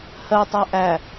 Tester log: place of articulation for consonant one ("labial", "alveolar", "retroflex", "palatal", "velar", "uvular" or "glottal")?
glottal